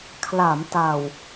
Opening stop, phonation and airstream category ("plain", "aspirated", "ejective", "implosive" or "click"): aspirated